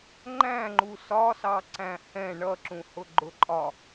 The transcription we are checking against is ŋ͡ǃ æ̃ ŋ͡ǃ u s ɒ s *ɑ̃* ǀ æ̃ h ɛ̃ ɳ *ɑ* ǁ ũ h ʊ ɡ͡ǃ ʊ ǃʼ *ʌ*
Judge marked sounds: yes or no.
no, no, no

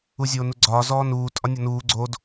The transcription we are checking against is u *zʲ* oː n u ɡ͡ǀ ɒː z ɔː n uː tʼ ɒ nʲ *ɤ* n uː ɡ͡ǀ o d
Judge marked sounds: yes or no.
yes, no

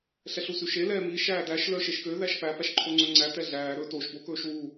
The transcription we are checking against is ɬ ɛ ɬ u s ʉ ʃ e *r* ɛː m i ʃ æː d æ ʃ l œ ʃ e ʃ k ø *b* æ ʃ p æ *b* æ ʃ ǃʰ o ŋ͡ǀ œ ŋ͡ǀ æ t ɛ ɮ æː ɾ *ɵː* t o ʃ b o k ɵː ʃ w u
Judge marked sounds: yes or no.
no, no, no, yes

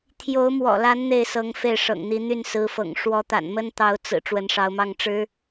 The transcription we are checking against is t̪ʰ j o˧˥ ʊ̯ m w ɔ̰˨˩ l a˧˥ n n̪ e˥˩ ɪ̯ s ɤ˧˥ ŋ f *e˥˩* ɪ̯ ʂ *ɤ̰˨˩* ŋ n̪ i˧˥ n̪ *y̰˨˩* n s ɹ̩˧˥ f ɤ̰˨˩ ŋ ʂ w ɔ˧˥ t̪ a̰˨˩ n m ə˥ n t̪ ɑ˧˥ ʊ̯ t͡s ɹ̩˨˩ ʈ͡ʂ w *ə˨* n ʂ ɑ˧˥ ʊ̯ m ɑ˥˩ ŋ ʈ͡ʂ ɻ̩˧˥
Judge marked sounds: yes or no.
yes, yes, no, no

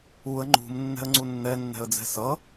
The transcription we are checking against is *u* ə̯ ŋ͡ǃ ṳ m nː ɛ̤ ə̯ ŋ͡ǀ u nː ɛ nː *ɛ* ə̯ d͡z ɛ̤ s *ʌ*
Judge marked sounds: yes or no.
yes, no, yes

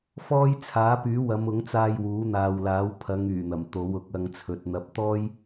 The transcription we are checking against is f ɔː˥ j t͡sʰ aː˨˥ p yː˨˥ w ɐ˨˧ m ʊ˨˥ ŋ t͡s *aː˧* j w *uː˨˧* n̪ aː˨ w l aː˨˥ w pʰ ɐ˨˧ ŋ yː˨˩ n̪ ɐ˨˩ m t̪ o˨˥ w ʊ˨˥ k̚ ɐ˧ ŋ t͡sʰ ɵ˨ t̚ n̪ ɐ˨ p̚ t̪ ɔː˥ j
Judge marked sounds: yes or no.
yes, no

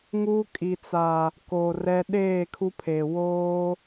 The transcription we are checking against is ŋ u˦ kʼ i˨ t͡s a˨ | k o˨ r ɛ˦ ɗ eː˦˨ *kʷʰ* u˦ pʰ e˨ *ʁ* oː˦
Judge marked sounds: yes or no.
no, no

